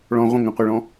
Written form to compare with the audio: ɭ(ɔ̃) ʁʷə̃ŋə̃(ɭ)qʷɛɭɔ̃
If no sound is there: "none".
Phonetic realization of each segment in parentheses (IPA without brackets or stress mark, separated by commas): ɔ̃, none